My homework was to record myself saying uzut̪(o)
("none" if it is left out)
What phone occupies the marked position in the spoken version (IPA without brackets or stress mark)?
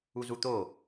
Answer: o